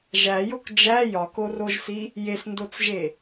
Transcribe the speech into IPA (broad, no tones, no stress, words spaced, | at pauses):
ʒæjok d͡ʒæ jɒkoroʒsi | jesndot͡sʒe